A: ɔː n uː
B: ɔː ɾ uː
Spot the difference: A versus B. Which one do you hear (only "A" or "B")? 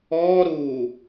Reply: B